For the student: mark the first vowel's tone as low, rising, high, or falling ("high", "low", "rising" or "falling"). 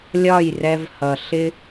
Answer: falling